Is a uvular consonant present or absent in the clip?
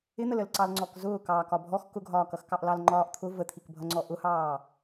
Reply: absent